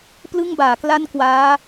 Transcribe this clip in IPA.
p l ɯ˥˩ ŋ b aː˩˦ k l a˥˩ n k w aː˦˥

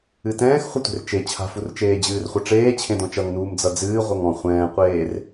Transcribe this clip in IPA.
ɨ t ɛ̃ː x χʷ ɨ tʷ e̤ r t͡ʃ e t͡ɕʰ a̤ f u r t͡ʃ eː d͡ʑ ɨː r χʷ ʌ ʈ͡ʂ eː t͡ɕʰ ẽ d ɔ̃ t͡ʃ ʌ ŋ n uː m d͡z ʌ d͡z ɨː ʁʷ ʌ ŋ ɔ̃ χʷ ɛ̃ː qʷ eː r

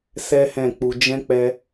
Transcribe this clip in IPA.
s ɛ˦ h ɛ̃˦˨ k͡p u˧ d͡ʒ ɛ̃˦ k͡p ɛ˧

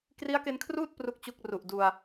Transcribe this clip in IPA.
k r i˦˥ a̯ k e˧ n kʰ r uː˥˩ t̚ p r u˥˩ k̚ t͡ɕ u˥˩ k̚ r u˨˩ ʔ d u˧ a̯

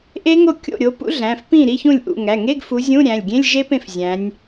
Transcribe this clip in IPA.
ʔ e˦˥ ŋ o˥˩ kʲ o̰˥˩ ɾʲ o˨˦ p ṵ˦˥ ɮ æ̃˩˧˩ f p ĩ˥˩ ɾ i˧˥˧ ç ũ˥˩ lʲ ʔ ṵ˥˩ ŋ æ˩˧˩ ŋ e˧˥˧ ɡ f u˨˦ zʲ ũ˧˥˧ ɾʲ æ̃˩˧˩ lʲ ɡʲ ẽ˧˥˧ lʲ ʒ e˦˥ p ẽ˥˩ f zʲ æ̃˨˦ nʲ

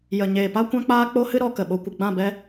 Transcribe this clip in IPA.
j ə˨ ɲ eː˨ p a˦ kʷ ã˦ k͡p aː˦ k͡p o˦ h ɨ˦ ɾ ɔ˧ k ə˨ ɓ o˧ kʷ ɨ˨ ɡ͡b ã˦˨ b ɛ˦

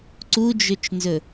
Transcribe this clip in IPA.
ǀ u d͡ʒ ɵ t͡ʃ n z ɵ

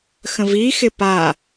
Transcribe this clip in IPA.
x ə̃ v i x ɪ p a

